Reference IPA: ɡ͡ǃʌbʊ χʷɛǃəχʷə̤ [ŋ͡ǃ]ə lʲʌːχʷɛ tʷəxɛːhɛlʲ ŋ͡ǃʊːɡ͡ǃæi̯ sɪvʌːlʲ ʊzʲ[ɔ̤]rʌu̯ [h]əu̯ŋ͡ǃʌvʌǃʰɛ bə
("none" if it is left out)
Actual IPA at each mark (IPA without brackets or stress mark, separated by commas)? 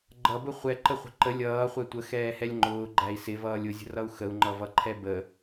ǃ, ə̤, x